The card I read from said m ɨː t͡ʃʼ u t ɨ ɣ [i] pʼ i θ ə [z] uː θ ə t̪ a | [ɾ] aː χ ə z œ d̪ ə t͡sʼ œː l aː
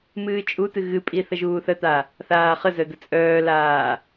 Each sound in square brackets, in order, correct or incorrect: incorrect: ɨ, incorrect: ʒ, incorrect: θ

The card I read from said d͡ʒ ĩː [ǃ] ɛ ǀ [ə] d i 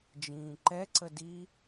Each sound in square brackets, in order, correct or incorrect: correct, correct

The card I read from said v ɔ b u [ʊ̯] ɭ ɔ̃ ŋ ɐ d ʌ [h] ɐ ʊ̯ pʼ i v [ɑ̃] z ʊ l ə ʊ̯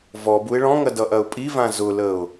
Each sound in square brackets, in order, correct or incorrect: incorrect: ɪ̯, incorrect: ʔ, incorrect: ã

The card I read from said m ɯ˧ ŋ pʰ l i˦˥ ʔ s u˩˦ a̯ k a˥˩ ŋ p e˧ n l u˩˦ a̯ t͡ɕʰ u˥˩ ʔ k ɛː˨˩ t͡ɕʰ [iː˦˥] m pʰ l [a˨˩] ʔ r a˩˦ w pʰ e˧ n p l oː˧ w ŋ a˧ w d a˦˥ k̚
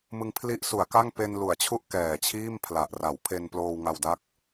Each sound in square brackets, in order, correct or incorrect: incorrect: iː˥˩, correct

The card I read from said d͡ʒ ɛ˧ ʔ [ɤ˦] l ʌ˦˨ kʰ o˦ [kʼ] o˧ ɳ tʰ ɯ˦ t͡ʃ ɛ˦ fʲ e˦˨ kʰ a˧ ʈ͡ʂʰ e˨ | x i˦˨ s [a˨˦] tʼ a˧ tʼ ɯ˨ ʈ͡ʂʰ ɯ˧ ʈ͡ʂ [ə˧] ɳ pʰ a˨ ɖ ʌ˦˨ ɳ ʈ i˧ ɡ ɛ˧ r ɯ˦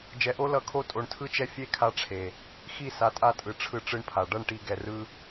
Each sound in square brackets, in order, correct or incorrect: incorrect: o˦, incorrect: tʼ, correct, incorrect: ɯ˧

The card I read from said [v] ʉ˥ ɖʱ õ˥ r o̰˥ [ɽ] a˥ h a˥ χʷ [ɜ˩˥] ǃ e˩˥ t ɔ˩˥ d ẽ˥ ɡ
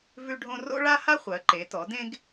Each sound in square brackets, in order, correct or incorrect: correct, incorrect: ɭ, correct

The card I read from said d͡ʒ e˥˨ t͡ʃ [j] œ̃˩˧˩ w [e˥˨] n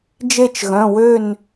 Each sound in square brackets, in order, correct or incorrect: incorrect: ɣ, incorrect: ø˥˨

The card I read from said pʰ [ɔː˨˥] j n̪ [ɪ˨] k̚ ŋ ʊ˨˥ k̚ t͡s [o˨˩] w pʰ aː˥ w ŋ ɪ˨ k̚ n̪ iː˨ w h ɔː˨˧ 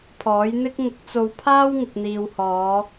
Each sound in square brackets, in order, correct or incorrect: correct, incorrect: ɪ˥, incorrect: o˧

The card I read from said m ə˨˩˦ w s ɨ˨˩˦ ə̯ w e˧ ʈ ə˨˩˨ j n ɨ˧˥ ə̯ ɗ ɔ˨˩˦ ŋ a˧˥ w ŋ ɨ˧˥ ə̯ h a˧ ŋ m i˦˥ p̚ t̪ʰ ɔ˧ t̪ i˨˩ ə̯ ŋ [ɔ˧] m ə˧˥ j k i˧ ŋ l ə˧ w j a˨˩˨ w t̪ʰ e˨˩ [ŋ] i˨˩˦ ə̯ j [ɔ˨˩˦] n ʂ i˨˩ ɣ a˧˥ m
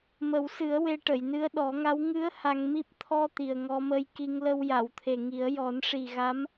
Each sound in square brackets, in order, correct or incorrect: correct, correct, correct

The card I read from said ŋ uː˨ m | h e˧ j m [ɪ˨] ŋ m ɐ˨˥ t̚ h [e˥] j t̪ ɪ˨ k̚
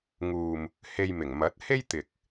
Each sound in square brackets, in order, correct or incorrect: incorrect: ɪ˨˩, correct

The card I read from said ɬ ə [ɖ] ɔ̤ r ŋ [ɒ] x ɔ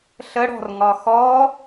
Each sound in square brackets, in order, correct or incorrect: incorrect: ɽ, correct

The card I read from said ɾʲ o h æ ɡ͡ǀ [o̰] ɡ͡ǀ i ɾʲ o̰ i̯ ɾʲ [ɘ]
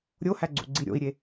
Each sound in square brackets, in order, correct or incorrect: incorrect: ṵ, incorrect: e

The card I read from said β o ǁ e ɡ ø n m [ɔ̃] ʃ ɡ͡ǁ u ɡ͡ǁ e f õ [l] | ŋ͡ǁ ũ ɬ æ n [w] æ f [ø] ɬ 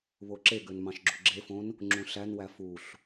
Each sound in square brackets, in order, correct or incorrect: incorrect: ɑ̃, incorrect: n, correct, incorrect: u

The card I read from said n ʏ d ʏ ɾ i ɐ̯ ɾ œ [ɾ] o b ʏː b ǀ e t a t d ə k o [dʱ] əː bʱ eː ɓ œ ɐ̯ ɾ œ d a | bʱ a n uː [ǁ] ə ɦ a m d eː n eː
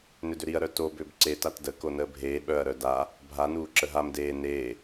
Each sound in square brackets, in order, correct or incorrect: incorrect: t, incorrect: n, correct

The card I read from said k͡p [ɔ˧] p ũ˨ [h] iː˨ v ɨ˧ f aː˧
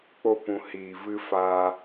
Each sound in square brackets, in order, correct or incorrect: incorrect: o˧, correct

